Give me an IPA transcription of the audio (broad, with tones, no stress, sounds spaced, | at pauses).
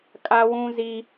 kʼ a˦ w ũ˦ z i˦